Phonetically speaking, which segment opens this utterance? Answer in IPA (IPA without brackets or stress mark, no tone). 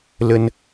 l